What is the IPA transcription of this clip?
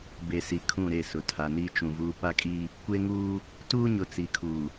be˨si˨kʰũ˦˨ ɾe˦˨sʊ˨ tʰa˨ni˦ t͡ʃũ˨vuː˦ pa˦kʼi˦ | kʷe˦ŋuː˦ | tuː˦ɲʊ˨ t͡si˨kʰuː˨

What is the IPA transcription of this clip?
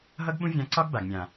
ɦʌ˦ɡɓũ˦vʲã˧ǀɒ˦ɡ ba˨ɡmʲã˨

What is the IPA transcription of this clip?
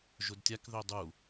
ʒʊdtʲakðø dˤu

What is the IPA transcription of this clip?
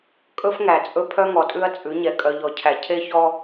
kʼɵ˦fŋæ˨t͡sʼɵ˦ pʰœ˦ŋɔ˨tʼʉ˦ɐ̯ t͡sʼʉ˨˦ɲɛ˨ kʼœ˨ʎɔ˨cʰæ˨ cʰe˦çɔ˦

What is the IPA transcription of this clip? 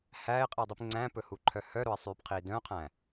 hæːɪ̯qʼidˤip ŋ͡ǀæ̃pɵhuǃʰœ hœɾoɪ̯sˤyːpqʰiː dœ̃qʰæ̃

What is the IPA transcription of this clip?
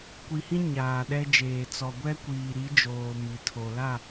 kʷi˨hĩ˦ ɲaː˨ɗɛ˦d͡ʒeː˨ t͡sɔ˨ ɡʷɛ˦kʷiː˨ɾi˨˦ d͡ʒoː˨ mi˨tʰo˨ la˦˨

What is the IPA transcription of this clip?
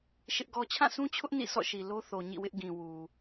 ʃɪ˦ʔɡɔ˦ t͡ɕʰã˦˨sʰũ˦t͡ɕʰʊ˦ʔ nḭ˦˨sɔ̰˦˨ʃi˨ lo˦θo˨ ɲḭ˦˨wɪ˦ʔɡĩ˨ wu˨

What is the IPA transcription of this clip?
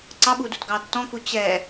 ǀɑɓuːdutɡɑː tːɔ̃ku t͡ɕɛ

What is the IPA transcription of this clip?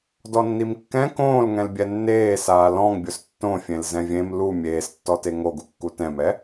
dɔnːimkːɛ̃ kõːlŋɛ̃lbʲɛ nːeːsaː lɔ̃ŋbʲʊs tːõfʲẽl zɛ̃vʲẽm lu mʲeːstːɔte ŋoɡukːu tɛ̃mɛ

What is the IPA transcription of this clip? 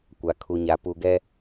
kʷa˨kʰu˨ɲa˨ pu˨ɡɛ˦

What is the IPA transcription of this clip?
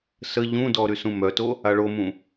sə ʎũdɔ ɾysũmœto | aɭomũ

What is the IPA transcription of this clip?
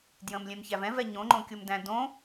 djə̃mlʲɛ̃mçæv ɛ̃vɛ ɲõŋ͡ǃõkʲomdæ̃ dõ

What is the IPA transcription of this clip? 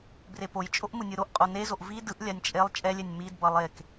brepojt͡ʃʼoʔ mɯnʲɯɾoʔqʼo nezoʔ vi dɯʔlʲanʲ t͡ʃʼelˠ t͡ʃʼɛlʲɛnʲ midbʌ lˠek

